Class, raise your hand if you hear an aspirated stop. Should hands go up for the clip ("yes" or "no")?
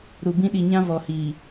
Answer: no